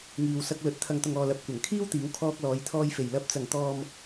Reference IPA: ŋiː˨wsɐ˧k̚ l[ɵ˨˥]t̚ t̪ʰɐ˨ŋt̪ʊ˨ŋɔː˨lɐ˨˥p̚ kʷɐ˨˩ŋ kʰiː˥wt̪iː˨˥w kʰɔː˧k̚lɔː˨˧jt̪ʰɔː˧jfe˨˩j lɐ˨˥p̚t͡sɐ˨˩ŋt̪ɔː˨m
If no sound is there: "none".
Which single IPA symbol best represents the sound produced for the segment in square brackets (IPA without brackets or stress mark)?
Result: ɵ˨˥